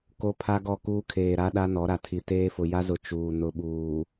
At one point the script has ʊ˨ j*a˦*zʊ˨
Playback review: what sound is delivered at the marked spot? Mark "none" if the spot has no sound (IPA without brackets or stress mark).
a˦